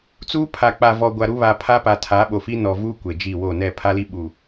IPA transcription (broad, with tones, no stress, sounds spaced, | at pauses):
t͡s uː˦ pʰ a˨ k͡p a˨ v ɔ˨ ɡʷ a˨ ɾ u˦ β a˨ pʰ a˦ p a˨ tʰ a˨˦ ɓ o˨ f i˦ n ɔ˨ v uː˦ kʷ e˨ d͡ʒ i˦˨ w o˦˨ n ɛ˦˨ pʰ a˦ l i˦ ɓ u˨